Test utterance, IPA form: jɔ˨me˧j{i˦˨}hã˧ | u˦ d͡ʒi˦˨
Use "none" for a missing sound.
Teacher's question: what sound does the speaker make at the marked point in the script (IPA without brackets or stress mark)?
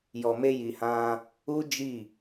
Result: i˨